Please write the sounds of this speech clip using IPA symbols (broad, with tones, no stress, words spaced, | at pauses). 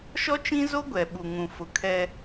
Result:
ʃɔ˦t͡ʃĩ˦zo˦ ɡʷɛ˨ɓu˨ŋũ˨ fʊ˨kʰɛ˦